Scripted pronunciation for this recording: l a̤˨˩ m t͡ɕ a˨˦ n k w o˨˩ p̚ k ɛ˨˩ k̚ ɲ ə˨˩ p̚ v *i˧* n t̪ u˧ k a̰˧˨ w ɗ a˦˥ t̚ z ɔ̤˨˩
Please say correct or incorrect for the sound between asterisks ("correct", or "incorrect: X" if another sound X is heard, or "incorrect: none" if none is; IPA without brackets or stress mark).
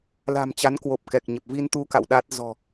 correct